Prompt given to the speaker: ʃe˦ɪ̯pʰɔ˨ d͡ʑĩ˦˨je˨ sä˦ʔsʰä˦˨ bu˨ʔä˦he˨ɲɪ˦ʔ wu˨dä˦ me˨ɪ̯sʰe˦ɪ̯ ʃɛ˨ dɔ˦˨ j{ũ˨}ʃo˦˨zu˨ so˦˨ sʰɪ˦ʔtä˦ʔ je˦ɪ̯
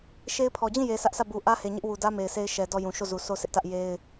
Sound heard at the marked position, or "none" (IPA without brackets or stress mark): ũ˨